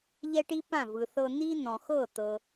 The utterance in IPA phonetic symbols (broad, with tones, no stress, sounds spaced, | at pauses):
ʎ ɛ˥ ʈ i˥ p ã˥˩ v ɯ˩ θ ɤ˧ n̪ i˥ n̪ ɔ̃˩ x ɤ˥˩ t̪ ɤ˩